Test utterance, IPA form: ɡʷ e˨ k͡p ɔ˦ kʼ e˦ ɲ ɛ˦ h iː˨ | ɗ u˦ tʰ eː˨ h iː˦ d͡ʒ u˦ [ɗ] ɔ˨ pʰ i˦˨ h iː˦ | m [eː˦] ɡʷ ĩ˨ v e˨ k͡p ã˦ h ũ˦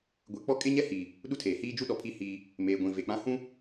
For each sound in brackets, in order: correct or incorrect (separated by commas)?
correct, incorrect